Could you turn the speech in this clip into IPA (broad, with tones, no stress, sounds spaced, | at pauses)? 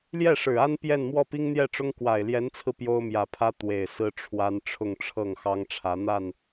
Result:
l j ɛ˥˩ ʂ ɻ̩˨˩ a˥ n p j ɛ˥˧ n m w ɔ˥˩ p i˥ ŋ n̪ j ɛ˥˩ ʈ͡ʂ ʊ˥ ŋ k w a˨˩ ɪ̯ l j ɛ˧˥ n t͡sʰ ɹ̩˧ p j o˥ ʊ̯ m j ä˨˩ pʰ ä˥ t̪ w e˨˩ ɪ̯ s ɹ̩˥ ʈ͡ʂʰ w a˥ n ʈ͡ʂʰ ʊ˥˧ ŋ ʈ͡ʂʰ ɤ˥˩ ŋ x ɑ˥ ŋ ʈ͡ʂʰ ä˧˥ n̪ a˥˩ n